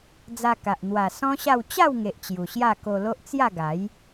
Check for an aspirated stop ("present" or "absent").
absent